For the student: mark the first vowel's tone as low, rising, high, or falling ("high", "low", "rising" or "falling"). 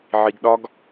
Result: low